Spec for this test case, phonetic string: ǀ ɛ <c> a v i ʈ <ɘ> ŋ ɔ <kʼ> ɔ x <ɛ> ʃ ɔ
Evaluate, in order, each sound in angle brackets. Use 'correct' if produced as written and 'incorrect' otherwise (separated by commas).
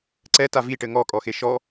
incorrect, correct, correct, incorrect